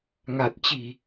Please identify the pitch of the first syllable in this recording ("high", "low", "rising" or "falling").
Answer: low